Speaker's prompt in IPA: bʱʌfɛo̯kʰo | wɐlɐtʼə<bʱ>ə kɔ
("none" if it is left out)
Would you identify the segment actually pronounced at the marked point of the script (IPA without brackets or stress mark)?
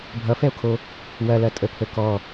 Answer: pʰ